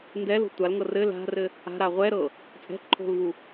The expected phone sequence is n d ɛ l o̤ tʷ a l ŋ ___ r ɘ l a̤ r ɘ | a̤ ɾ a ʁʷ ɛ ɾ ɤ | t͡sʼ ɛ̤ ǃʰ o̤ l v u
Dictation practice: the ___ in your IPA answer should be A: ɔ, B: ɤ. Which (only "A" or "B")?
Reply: B